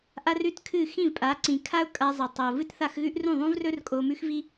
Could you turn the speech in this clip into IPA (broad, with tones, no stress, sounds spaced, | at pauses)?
ʔ a˦ r ʉ˦ t kʰ ɨ˦˨ x ĩ˦˨ v pʼ a˨˦ ǀ ĩ˨ kʰ a˦ ʊ̯ kʼ a˧ zˤ ɐ˨ tˤ o˨ v ɨ˦ t θ a˧ x ɣ ʉ˦ ʔ r ũ˦˨ ðˤ ũ˦ v r ɵ˦ r kʼ o˧ m ʉ˦ x v i˦